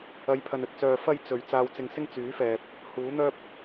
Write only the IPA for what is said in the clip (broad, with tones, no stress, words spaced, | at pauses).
ɐ˨˧jpʰɐ˨nɵ˨t̚t͡sœː˨ fɐ˥j t͡sɵ˨ɥ t͡saː˧wt͡sɪ˧ŋsɪ˥ŋ t͡syː˨˥fɛː˨p̚ | huː˨˥n̪œː˥p̚